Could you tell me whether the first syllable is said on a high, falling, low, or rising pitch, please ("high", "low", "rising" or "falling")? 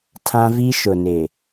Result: high